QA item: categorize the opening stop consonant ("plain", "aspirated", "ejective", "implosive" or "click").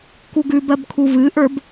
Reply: plain